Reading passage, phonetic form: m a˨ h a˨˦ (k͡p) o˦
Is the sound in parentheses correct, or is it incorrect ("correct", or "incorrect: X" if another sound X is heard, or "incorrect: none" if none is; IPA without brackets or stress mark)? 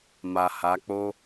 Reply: correct